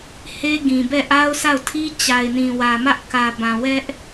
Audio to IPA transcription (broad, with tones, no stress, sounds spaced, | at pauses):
h e˦ ɡ ĩ˨ b ɛ˦˨ ʔ a˦ ʊ̯ sʰ a˦˨ ʊ̯ tʰ i˦ t͡ɕ a˨ ɪ̯ n ĩ˨ w ä˨ m ä˦ ʔ k ä˨ b ã˨ w ɛ˦ ʔ